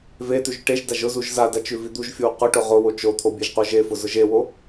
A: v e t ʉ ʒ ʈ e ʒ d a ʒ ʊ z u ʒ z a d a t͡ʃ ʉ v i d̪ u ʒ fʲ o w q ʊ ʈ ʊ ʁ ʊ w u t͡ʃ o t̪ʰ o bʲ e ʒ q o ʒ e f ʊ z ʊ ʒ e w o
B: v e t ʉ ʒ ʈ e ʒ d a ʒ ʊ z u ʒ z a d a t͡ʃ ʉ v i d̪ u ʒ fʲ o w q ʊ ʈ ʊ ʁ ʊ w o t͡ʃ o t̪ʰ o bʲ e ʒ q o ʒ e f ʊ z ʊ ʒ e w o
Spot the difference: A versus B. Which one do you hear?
B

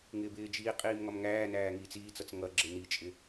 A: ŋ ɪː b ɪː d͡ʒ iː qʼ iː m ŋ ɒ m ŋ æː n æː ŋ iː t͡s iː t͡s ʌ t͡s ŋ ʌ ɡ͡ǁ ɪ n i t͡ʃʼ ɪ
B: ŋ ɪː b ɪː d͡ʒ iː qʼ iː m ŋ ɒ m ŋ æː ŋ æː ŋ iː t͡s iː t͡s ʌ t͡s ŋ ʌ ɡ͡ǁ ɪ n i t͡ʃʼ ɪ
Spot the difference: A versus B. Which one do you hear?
A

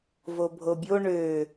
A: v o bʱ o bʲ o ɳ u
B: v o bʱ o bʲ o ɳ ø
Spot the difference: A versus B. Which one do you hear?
B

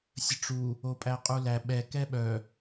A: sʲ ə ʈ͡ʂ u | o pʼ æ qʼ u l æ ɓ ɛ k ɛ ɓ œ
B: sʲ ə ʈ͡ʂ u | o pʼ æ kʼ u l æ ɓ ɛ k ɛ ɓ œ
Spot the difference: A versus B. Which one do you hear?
A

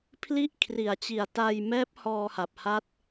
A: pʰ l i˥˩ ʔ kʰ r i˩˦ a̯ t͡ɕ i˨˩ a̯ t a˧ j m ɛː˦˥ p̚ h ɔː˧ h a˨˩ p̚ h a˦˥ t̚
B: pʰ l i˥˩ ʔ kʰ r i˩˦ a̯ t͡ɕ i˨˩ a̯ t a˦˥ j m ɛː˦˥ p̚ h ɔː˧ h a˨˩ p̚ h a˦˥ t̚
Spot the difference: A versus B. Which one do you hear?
A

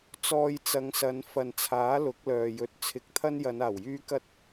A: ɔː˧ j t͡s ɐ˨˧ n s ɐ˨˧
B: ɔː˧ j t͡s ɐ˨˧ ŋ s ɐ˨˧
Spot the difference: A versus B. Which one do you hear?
B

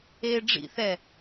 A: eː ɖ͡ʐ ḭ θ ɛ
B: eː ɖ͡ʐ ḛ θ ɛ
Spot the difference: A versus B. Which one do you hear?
A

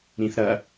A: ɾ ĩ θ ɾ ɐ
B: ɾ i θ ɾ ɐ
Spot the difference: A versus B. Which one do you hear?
A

